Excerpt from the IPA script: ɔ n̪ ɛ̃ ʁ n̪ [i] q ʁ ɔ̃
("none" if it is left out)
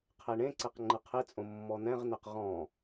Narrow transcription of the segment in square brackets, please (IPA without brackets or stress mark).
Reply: e